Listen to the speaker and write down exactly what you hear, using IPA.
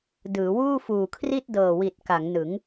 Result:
d ɯː˩˦ w uː˥˩ f uː˨˩ kʰ r i˥˩ t̚ d ɤː˨˩ w i˨˩ t̚ k a˩˦ ŋ n ɯ˩˦ ŋ

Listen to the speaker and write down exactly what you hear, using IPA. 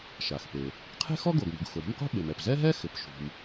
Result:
ʃ a˩ x p e˩ | qʰ e̤˥ x ɔ˥ ɡ o˩ ɡ m ṳ˩ ɡ x ʊ˩ ɾ e̤˥ m q ṳ˥ ɓ e˩ m ɛ˩ p z ɛ˥ ɦ ɛ˥ x ɪ˩ p ʃ ṳ˩ m

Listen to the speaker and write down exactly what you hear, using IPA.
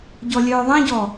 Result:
ɟ ɔ lʲ œː ðˤ ɛ̃ ɟ ɔ

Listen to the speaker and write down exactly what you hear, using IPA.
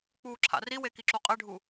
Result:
k͡p uː ǁʰ a̰ r i w e k i ǁ u qʼ ɛ ɖʱ u

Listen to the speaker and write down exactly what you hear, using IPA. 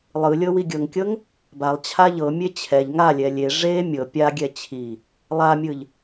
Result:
lˠ ɯ lʲ ɤ w i ɡʲ ɤ ŋ kʲ ɤ ŋ | b a lˠ t͡ɕʰ a ʎ ɤ mʲ e t͡ɕʰ ɛ ʎ ŋ a lʲ ɛ lʲ e ʐ e mʲ ɤ pʲ a ɡʲ ɛ t͡ɕʰ i | lˠ a mʲ ɯ ʎ

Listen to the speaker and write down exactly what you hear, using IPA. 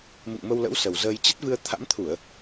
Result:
m ɨ̰˧˨ ŋ m ə˧ w l ə̰˧˥ w s ə˨˩ w z əː˧ j t͡ɕ ə˦˥ t̚ v ɨ˧ ə̯ t̪ʰ a̰˧˥ m t̪ʰ u˧˩˨ ə̯

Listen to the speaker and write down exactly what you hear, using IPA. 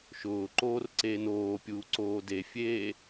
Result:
ʃ ʊː ǃ oː r ǀ eː n oː pʲ uː ǀ oː d e fʲ eː

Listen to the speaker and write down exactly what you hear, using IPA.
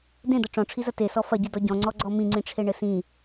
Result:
d ẽ d̪ ɐ ʈ͡ʂ ɔ̃ ʈ͡ʂʰ i z ɐ t e s ɔ f ɐ ɟ ɨ d ɔ ɟ ɔ̃ ŋ͡ǀ ɔ ɡ͡ǀ ɔ m ĩ ŋ͡ǀ ĩ ʈ͡ʂʰ e ɳ ɘ s ĩ

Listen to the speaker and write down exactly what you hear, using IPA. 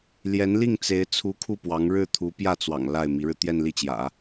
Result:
l j ɛ˧˥ n l i˥˩ ŋ t͡s e˧˥ ɪ̯ t͡sʰ u˧˥ kʰ u˥˩ p w ɑ˧˥ ŋ ɻ ɻ̩˥˩ t̪ʰ u˧˥ p j ä˥˩ t͡s w ɑ̰˨˩ ŋ l a˥˩ ɪ̯ m i˧˥ ɻ ɻ̩˧ t̪ j ɛ˥˧ n l i˥˩ t͡ɕ j ä̰˨˩˦

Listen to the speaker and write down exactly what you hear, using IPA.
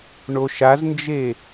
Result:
ɳ o ʃ a z n d͡ʒ e

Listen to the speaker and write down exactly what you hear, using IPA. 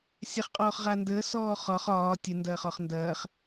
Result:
sʲ a χ qʼ ɔː χ ʁ a n d əː s ɔː χ ɒ χ ɒː tʲ ə n d ɐː χ ɒ χ n d ɐː χ

